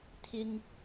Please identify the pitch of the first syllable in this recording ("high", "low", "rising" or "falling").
low